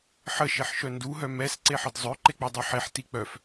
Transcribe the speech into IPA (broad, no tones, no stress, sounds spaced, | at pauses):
ħ ə ʃ e ħ ʃ œ n d u ɦ œ m ɛ s ǀ e ħ ə d zˤ œ ǃ e k͡p ɛ dˤ ə˞ ħ e ħ t i k͡p œ f